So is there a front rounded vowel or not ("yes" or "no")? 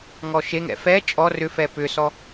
yes